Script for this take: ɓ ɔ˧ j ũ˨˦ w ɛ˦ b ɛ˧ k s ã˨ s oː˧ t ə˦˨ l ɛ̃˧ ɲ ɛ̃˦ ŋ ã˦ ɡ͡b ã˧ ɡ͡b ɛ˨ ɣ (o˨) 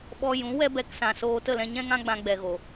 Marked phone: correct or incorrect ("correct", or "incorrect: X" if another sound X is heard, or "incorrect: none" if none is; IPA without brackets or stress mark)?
correct